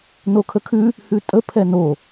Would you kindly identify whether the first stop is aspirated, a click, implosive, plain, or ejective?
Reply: aspirated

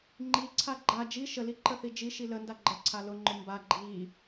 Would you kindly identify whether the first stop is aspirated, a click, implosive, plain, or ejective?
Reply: click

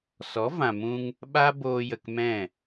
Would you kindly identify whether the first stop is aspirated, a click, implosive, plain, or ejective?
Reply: implosive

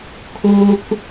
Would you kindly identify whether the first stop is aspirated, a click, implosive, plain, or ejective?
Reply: aspirated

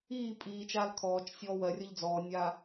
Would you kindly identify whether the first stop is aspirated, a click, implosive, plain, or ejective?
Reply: ejective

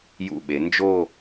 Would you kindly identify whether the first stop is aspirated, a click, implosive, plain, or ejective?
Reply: implosive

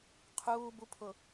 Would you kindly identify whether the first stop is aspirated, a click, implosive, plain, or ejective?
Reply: aspirated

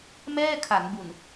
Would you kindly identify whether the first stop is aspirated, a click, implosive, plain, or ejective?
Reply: aspirated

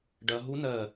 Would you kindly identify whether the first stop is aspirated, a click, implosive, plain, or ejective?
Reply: plain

